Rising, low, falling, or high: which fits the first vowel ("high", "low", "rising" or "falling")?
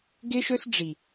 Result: high